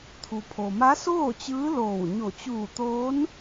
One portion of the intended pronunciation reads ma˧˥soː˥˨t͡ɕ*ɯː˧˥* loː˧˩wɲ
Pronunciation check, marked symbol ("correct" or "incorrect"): correct